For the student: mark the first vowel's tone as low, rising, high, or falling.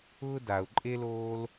high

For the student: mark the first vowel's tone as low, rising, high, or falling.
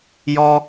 high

